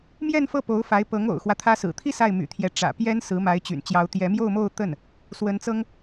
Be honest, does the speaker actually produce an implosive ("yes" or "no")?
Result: no